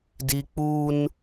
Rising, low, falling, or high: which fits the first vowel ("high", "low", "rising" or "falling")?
high